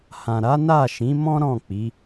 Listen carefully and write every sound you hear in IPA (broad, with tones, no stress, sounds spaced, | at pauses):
h ã˨ ɾ a˨˦ n a˦˨ ʃ ĩ˨˦ m ɔ̃˦ ɾ ɔ̃˦˨ k͡p i˨˦